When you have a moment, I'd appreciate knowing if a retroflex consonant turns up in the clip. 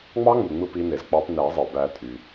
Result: no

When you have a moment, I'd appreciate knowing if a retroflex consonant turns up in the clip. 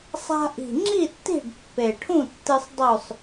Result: yes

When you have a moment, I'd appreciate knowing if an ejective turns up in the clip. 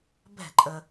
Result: yes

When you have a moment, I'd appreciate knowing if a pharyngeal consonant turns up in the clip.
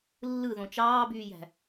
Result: no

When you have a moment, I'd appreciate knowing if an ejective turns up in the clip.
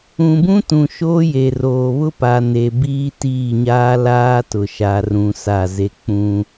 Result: no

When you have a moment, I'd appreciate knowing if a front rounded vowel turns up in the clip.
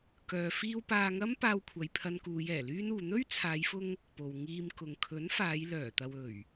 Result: yes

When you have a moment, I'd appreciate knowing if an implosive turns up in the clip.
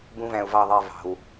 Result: no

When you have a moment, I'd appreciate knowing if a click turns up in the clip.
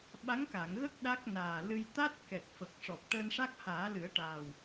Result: no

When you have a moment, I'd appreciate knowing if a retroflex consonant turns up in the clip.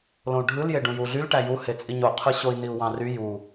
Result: yes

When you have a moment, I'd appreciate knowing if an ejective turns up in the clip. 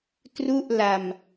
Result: no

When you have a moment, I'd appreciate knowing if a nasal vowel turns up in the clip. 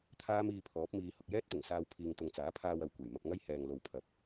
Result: no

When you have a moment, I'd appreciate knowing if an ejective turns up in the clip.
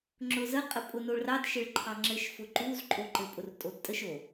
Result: yes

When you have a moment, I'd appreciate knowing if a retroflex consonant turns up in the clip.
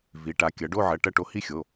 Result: yes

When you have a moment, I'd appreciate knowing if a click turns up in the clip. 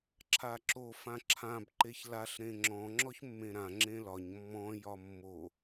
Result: yes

